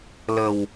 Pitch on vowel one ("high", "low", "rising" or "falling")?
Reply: low